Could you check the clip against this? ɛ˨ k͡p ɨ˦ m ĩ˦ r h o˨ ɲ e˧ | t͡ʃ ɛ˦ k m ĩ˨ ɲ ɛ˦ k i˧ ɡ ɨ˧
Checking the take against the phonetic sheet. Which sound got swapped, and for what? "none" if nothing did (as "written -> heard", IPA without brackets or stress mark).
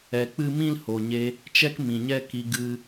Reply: r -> l